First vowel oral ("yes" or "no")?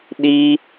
yes